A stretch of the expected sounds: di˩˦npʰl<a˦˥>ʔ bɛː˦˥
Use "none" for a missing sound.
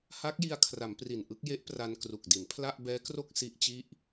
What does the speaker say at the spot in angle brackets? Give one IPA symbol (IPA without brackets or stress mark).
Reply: a˥˩